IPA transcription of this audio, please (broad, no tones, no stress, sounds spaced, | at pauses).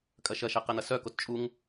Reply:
kʼ ɐ ʃ ɐ ʃ ɛ q ɛ n̪ ɐ s œ k o t t͡ʃʼ u ŋ